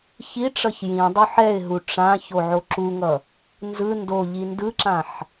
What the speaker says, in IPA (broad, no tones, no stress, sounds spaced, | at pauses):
ç i ʈ͡ʂ ʌ ç j ĩ dˤ u ħ ɛ ɪ̯ ɦ u ʈ͡ʂ ã ç o ʕ o ǁ u ŋ ʌ | n z ɯ n d o ʎ i n d ɯ ǁ ã ħ